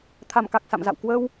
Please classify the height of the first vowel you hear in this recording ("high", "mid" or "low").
low